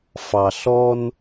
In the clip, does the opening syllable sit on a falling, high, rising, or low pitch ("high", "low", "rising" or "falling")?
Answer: low